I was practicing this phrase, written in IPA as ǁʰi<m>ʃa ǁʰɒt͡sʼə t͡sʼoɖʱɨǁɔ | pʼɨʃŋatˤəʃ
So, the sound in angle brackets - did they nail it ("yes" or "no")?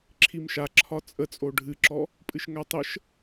yes